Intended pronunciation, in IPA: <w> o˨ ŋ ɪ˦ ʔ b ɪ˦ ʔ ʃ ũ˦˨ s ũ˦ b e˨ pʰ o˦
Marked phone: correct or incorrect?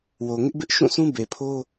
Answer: correct